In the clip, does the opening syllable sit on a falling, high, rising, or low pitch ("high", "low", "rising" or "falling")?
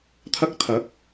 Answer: high